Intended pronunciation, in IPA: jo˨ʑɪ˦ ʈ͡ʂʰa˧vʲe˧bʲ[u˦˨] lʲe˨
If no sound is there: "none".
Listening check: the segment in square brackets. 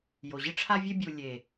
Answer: u˨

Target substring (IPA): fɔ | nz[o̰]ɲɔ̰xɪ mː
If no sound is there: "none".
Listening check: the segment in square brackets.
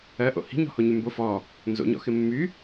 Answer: o̰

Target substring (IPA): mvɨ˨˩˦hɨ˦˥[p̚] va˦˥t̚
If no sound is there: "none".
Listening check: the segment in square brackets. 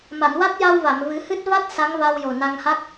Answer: t̚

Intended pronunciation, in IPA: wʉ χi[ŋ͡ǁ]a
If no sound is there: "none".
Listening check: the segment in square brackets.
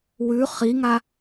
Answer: ŋ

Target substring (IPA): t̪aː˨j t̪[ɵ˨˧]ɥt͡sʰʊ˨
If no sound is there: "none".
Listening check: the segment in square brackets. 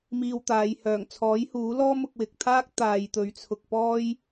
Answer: ɵ˨˧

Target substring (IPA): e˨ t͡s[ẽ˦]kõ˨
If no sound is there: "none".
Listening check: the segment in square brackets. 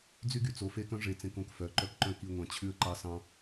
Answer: ẽ˦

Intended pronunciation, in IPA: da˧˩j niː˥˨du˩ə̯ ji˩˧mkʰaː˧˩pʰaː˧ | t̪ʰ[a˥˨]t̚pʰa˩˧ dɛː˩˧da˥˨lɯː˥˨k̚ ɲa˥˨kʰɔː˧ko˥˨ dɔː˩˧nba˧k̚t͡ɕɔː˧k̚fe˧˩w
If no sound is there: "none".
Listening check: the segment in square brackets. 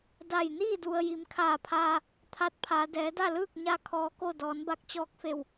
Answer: a˧˥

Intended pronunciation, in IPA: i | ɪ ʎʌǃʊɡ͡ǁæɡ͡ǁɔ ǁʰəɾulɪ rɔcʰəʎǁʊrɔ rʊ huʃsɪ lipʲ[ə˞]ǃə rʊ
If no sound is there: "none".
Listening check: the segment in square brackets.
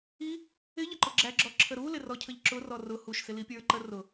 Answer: ə˞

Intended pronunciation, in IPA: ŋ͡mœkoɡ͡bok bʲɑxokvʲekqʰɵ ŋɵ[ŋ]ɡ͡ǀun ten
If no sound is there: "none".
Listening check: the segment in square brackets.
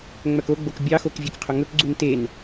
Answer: k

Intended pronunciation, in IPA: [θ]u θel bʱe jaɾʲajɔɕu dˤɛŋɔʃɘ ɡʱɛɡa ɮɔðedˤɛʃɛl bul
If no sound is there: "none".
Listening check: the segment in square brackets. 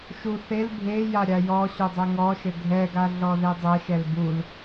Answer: ʃ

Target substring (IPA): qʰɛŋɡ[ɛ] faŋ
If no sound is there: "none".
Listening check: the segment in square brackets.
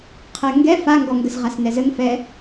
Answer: ɛ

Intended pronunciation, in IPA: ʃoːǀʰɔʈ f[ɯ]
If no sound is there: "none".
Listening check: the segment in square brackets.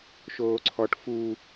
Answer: u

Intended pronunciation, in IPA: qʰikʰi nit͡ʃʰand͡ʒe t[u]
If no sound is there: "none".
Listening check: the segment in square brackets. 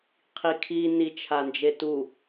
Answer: u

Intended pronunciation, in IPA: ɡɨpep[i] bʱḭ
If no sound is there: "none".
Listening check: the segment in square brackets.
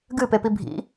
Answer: i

